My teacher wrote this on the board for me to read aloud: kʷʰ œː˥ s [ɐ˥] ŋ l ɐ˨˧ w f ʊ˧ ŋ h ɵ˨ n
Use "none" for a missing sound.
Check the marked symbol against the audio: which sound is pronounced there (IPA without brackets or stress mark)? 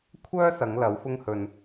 ɐ˨˧